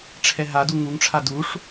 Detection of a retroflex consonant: present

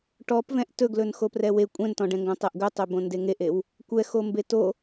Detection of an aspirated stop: absent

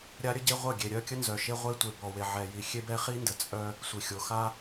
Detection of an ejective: present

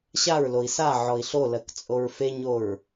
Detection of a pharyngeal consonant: present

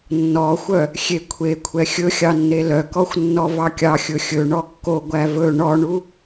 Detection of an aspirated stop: present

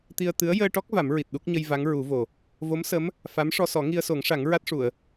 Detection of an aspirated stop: absent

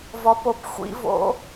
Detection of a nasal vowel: absent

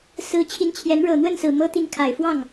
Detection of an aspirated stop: present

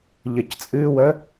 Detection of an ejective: present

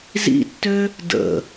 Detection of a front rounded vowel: present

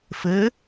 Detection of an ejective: absent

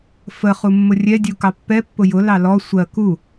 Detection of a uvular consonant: present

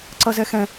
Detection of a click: present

